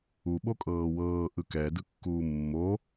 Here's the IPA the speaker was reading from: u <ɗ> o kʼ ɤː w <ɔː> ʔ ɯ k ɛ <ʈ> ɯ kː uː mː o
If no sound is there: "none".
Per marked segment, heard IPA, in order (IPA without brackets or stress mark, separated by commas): ɓ, ɤː, d